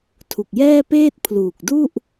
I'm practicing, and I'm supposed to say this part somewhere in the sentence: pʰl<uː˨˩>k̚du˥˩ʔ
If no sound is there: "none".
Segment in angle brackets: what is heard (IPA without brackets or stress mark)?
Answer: uː˨˩